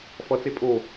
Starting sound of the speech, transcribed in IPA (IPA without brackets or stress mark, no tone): f